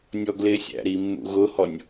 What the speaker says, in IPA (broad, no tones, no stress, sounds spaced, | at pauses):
nʲ ɔ ɡ l ɪ sʲ æ̰ ɾ i mː ṵ ɣ ʊ h ɔ nʲ